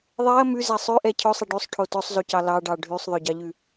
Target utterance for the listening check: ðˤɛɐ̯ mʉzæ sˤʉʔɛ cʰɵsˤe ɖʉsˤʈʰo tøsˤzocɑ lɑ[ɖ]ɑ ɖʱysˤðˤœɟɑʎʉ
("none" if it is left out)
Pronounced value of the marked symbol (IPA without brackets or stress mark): ɖ